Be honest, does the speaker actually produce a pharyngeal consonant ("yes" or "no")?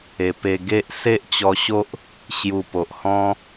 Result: no